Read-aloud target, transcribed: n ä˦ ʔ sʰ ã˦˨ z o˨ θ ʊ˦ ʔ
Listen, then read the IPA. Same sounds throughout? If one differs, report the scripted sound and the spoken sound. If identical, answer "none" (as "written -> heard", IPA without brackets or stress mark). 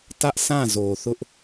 n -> t